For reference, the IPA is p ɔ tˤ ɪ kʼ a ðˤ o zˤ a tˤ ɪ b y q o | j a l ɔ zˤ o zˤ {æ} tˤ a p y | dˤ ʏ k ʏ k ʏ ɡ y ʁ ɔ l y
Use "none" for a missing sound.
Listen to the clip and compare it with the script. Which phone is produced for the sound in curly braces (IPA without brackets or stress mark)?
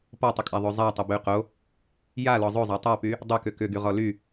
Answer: a